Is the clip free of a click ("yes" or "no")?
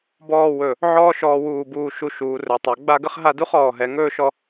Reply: yes